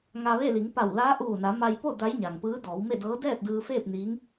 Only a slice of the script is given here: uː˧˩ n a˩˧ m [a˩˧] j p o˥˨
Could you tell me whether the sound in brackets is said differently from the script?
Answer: yes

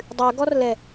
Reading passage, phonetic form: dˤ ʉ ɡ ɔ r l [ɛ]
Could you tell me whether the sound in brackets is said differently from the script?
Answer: no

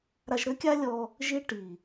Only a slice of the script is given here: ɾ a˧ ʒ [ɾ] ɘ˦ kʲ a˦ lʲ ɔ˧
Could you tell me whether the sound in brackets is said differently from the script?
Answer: no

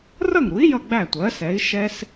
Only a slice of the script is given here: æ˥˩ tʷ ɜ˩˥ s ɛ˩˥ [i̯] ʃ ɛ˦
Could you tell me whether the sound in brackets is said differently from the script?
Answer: no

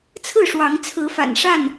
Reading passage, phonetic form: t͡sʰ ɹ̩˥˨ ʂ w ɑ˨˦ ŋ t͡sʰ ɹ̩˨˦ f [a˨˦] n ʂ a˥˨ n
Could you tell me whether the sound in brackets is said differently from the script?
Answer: yes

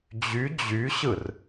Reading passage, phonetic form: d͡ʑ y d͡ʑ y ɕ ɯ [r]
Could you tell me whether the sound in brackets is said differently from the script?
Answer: no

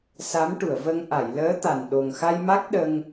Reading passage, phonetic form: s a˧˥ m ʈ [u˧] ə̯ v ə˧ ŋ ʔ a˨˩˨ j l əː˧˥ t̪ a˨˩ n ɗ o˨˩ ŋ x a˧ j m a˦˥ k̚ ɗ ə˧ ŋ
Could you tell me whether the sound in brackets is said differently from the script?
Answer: yes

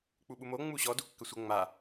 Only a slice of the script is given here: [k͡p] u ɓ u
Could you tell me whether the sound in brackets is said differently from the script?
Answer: no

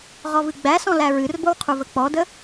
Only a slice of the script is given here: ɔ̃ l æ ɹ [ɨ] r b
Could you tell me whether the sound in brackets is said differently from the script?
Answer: no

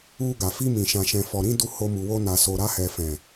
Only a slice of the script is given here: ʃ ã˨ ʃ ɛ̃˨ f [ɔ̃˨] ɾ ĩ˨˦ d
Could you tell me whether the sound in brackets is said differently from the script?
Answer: yes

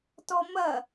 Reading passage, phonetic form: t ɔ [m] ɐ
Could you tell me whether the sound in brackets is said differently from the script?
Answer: no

